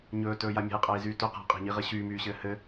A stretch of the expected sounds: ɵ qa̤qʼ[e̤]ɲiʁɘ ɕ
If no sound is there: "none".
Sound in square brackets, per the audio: e̤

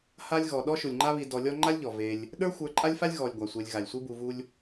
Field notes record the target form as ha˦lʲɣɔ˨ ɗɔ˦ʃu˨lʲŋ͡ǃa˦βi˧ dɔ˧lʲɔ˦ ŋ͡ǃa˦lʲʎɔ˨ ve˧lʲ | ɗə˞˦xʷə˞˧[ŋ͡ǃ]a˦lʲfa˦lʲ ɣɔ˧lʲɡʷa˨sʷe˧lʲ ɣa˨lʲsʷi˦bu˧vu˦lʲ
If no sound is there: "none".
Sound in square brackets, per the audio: ǃʼ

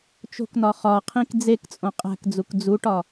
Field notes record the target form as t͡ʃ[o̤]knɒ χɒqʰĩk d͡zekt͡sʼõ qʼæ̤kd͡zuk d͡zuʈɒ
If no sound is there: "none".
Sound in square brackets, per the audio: o̤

